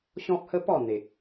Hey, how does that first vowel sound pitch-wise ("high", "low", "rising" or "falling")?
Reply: high